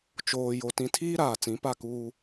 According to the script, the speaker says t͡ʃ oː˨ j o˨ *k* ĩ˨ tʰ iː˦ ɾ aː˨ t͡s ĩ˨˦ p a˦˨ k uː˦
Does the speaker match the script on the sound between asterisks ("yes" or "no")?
no